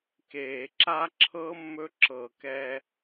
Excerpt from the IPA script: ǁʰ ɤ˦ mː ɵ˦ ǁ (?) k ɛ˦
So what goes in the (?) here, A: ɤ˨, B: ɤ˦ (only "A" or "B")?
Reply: A